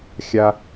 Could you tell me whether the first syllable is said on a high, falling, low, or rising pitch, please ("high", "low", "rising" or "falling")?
high